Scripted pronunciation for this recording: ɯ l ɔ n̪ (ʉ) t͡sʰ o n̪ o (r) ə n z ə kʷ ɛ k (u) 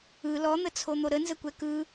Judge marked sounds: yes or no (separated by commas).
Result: no, no, no